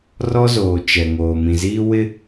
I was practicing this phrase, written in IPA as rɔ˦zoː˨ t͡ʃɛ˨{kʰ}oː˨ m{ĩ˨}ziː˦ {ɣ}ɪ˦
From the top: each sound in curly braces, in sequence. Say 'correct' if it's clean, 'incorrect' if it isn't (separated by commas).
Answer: incorrect, correct, incorrect